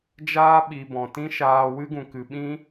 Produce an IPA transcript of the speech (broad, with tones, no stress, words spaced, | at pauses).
d͡ʒaː˦ɓi˨ bɔ̃˨tĩ˦ʃaː˧ wɨ˦ɡũ˨kɨ˨ɓĩ˦